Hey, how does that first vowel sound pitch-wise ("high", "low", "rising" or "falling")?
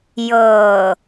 low